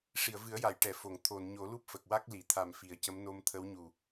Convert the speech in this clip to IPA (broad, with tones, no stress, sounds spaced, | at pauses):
ʂ i˨˩˨ ə̯ v ɨ˨˩˦ ə̯ j a˨˩˨ j ʈ ɛ˨˩˨ f o˨˩˨ ŋ t̪ʰ o˨˩˨ n ɲ o˨˩˦ l u˦˥ p̚ f ə˨˩ k̚ w a˦˥ k̚ l i˨˩˨ t̪ʰ a˨˩ m f i˨˩˨ ə̯ c ə˧˥ m n o˧ m t̪ʰ ə˧˥ w ɲ u˨˩